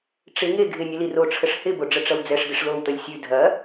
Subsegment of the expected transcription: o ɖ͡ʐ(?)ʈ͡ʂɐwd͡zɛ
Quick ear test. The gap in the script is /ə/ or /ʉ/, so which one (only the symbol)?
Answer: ə